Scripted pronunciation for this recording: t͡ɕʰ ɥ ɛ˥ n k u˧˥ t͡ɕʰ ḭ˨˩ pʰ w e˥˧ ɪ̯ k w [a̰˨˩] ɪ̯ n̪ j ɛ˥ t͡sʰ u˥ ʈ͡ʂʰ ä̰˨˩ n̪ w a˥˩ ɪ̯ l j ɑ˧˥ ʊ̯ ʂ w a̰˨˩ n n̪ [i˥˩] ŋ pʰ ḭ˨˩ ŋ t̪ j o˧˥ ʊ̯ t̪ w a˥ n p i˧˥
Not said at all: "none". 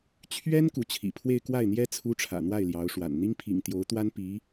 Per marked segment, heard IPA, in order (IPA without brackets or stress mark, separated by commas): a˥˩, i˥